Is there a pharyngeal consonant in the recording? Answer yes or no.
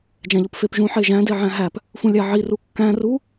yes